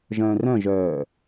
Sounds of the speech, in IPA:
ʒ œ̃ː r œ̃ ʒ œː

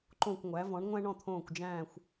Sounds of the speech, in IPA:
ǃ õ˥˩ kʷ ŋʷ æ˩˥ v ɔ̃˩˥ ɳ ŋʷ æ̃˥ ɳ ɔ̃˥˩ t̪ʰ õː˥˩ kʷ d͡ʒ æ̃ː˥˩ xʷ

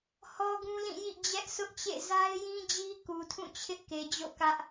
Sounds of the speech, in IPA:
h ɔ˦ ɡ ũ˦ l ĩ˦˨ j ḭ˦˨ d͡ʑ ɛ˦ ʔ sʰ ʊ˦ ʔ t͡ɕ ḛ˦˨ z a˦ ɪ̯ j ĩ˦ d͡ʑ i˦ k u˨ tʰ ũ˦˨ t͡ɕʰ ɪ˦ ʔ k e˨ d͡ʑ o̰˦˨ k ä˦ ʔ

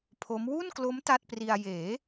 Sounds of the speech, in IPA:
pʰ o˦˥ m w u˥˩ n k l o˦˥ m t a˥˩ t̚ p r i˧ a̯ j eː˩˦

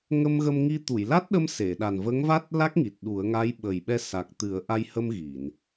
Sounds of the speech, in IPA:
ŋ ə˧ m ɣ ə˧ m ŋ i˧ t̪ u˨˩˨ j l a˦˥ t̚ ɗ ə˧ m s e˨˩˨ ɗ a˨˩ n v ə˧˥ ŋ v a˦˥ t̚ l a˦˥ k̚ ŋ i˨˩ t̚ ɗ u˨˩˦ ə̯ ŋ a˧˥ j ɓ ə˨˩ j ɓ ɛ˧ s a˨˩ k̚ t̪ ɨ˨˩˦ ə̯ ʔ a˧ j h ə˧ m ɣ i˨˩˨ n

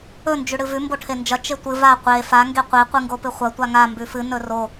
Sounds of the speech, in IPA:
ɵ n d͡ʒ ʉ ɽ ɨ v ʉ m b o ʈʰ e n d͡ʒ ɐ t͡ʃ e tʷ ɨ v a qʷ e f a ŋ ɡ e qʷ e qʷ ɨ ŋ ɡ o p ɨ χʷ ɐ tʷ a ŋ a m b ʉ f ɨ n ɵ r o

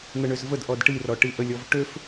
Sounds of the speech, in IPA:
n̪ ə ɳ ø z v ə d ʔ ɔ d ʈ i r ɔ ʈ i ʔ ə lʲ ɔ v ʈ ø f

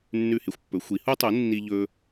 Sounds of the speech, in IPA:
nː ʉ˥˩ h e˥ xʷ pː ɵ˩˥ xʷ i˩˥ h u˥ tˤ u˩˥ nː i˥ ʎ ɵ˥

